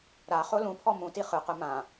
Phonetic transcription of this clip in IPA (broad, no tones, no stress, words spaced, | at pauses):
ɾaχo lũpʰɔ mũ tiχɯqɯ mã